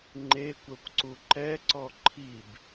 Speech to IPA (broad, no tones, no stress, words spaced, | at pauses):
ŋ͡ǃekʷœkʷǀu ǃɛǀɔ ǃʰib